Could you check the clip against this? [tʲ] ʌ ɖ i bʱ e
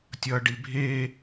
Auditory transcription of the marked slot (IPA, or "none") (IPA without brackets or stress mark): tʲ